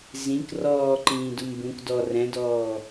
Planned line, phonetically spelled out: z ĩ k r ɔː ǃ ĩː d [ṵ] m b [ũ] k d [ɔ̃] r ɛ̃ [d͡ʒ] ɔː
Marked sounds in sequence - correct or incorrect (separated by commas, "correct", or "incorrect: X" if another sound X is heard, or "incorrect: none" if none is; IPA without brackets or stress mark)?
incorrect: u, correct, incorrect: ɔ, incorrect: d